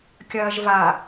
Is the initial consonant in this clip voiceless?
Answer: yes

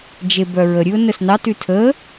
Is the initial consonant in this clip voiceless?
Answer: no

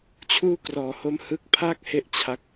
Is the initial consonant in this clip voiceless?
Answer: yes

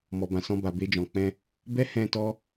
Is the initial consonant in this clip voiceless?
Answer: no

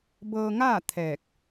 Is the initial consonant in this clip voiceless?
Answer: no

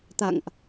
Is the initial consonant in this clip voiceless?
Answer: yes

